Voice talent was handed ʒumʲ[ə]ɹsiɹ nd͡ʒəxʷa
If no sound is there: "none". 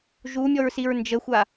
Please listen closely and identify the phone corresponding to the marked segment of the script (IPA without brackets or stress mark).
ɔ